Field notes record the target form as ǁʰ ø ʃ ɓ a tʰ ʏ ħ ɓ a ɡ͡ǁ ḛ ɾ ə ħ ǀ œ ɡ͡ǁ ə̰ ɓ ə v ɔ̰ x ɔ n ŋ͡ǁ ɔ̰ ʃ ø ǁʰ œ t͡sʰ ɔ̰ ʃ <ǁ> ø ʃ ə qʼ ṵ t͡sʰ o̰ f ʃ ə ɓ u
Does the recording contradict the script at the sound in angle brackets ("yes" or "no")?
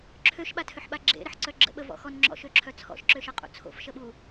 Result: no